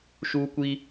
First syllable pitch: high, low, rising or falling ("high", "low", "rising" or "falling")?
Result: high